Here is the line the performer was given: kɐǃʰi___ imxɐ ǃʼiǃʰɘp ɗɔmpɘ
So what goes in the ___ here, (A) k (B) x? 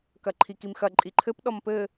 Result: A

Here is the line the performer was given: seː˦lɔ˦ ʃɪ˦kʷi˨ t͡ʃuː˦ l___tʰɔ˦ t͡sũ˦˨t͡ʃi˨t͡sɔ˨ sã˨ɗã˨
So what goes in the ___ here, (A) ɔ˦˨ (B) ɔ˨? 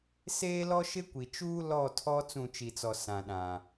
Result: A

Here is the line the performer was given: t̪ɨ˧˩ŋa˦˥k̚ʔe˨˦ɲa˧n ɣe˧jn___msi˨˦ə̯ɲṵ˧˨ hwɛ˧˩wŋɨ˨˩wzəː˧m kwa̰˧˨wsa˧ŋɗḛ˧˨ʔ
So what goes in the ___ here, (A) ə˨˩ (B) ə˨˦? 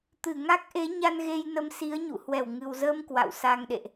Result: B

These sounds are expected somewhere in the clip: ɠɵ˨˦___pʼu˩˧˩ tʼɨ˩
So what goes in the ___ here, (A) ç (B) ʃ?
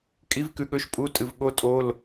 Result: B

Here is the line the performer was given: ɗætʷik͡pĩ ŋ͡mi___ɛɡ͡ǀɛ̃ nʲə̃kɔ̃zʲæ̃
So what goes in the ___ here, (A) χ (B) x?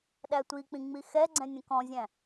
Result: B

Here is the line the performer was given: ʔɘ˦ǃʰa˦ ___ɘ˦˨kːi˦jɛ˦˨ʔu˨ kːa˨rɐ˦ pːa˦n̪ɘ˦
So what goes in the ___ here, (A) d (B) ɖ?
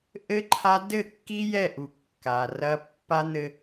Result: A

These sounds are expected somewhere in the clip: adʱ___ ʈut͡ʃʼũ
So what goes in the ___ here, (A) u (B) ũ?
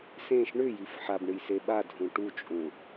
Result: B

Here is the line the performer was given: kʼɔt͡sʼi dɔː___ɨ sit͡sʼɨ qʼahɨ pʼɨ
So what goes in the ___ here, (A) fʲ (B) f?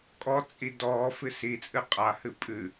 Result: B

